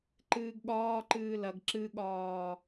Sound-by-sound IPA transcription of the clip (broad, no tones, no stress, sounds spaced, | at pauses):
ǃ ɨː ɡ ɠ ɒː ǃ ɨː l ɐ ɡ ǁ ɨ ɠ ɒː